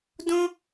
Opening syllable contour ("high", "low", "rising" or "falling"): high